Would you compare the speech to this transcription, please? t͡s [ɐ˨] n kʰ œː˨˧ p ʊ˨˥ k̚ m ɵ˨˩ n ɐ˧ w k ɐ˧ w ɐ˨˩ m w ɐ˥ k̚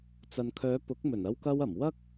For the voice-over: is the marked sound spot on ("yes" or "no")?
yes